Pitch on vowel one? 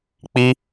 high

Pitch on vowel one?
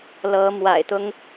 rising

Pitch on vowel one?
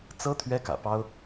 high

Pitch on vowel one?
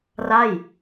falling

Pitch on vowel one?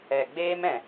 low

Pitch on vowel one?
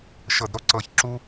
low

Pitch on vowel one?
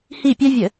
falling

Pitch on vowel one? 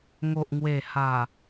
low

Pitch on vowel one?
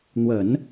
low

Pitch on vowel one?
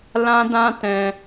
high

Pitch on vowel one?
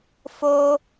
high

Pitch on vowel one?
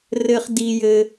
high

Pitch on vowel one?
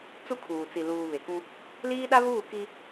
high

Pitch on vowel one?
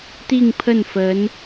falling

